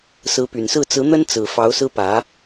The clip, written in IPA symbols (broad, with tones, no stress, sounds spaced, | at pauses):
s ɹ̩˧˥ p y˨˩ n s ɹ̩˥˩ t͡s ɹ̩˧˥ n̪ ə˥ n t͡s ɹ̩˨˩ f ɑ˧˥ ʊ̯ s ɹ̩˥ p ä˧˥